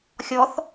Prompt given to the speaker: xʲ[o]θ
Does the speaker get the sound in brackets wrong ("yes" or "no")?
yes